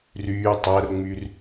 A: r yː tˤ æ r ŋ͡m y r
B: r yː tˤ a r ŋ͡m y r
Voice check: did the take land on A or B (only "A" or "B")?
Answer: A